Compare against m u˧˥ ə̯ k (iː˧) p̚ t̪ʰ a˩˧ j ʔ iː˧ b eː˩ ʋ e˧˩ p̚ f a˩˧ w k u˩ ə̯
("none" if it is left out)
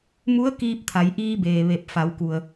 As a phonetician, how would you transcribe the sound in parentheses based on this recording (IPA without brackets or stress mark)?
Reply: iː˧